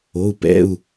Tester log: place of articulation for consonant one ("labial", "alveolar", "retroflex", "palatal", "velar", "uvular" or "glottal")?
labial